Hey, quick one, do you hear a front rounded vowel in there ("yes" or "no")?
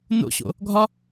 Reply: no